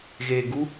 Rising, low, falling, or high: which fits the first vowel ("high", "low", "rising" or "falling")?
low